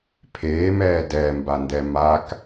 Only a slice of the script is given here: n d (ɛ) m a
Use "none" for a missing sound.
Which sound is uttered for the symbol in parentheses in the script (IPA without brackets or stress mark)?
ɛ